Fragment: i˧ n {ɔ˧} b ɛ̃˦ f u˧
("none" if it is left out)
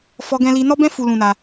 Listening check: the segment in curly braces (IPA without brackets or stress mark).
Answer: ɔ˦